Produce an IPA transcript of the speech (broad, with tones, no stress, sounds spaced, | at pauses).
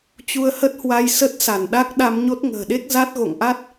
t͡ɕ u˧ ə̯ h ə˦˥ t̚ h w a˧ j s ə˦˥ t̚ s a˧˩ n ɗ a˦˥ k̚ ɗ a˧ m ɲ o˦˥ t̚ ŋ ə̤ː˨˩ ɗ e˦˥ k̚ z a˦˥ t̚ ɣ o̰˧˨ ŋ ʔ a˦˥ t̚